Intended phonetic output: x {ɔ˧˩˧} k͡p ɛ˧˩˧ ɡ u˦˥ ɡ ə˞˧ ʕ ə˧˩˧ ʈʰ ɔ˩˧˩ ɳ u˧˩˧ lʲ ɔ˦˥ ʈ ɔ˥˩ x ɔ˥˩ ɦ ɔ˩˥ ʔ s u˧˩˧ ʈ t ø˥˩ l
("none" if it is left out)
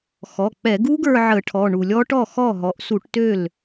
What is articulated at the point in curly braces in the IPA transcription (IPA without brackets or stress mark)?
ɔ˩˧˩